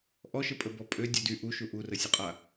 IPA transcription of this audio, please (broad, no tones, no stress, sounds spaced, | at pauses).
ʔ ɔ ʃ ə pʼ ə b ɔ pʼ ø dʲ ø d y ʔ u ʃ u ʔ u r ə sʲ ə qʼ a